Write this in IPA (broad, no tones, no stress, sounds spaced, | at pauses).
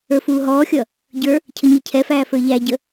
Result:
ə˞ f uː ɦ ɔː xʲ ʌ | ɟ ə˞ | cʰ ə ɲ i cʰ ɛ f æː f ə˞ ʎ æ ɟ ə